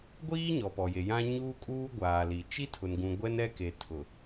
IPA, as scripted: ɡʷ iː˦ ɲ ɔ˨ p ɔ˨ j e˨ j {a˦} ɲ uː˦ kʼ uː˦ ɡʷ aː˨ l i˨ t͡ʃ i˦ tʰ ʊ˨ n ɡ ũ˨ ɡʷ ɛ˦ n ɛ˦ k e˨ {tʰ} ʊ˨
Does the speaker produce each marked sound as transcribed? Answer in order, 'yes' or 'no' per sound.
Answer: no, yes

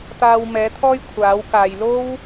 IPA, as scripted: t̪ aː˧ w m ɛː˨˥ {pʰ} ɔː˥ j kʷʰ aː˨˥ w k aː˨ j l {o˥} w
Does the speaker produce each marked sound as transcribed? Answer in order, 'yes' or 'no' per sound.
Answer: no, yes

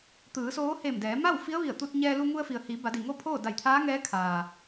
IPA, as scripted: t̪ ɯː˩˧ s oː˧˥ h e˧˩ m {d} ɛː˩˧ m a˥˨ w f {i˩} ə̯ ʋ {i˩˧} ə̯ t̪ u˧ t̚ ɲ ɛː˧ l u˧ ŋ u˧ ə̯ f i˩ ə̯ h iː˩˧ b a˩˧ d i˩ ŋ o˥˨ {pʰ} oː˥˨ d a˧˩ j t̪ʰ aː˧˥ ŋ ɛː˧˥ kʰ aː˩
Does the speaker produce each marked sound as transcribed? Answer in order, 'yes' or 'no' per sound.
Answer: yes, no, no, yes

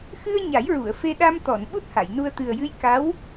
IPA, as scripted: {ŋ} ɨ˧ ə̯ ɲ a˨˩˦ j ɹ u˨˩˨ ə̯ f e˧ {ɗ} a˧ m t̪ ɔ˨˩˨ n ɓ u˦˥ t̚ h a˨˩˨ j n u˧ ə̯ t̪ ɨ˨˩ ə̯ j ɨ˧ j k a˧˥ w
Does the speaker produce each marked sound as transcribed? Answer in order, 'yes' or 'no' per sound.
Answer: no, yes

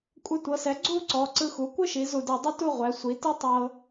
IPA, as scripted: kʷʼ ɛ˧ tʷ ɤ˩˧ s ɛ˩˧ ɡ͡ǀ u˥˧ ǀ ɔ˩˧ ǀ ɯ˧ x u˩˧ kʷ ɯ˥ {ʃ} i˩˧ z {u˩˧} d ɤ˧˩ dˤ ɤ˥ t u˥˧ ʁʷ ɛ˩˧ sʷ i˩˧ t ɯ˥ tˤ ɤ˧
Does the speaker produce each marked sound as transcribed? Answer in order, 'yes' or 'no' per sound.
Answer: yes, no

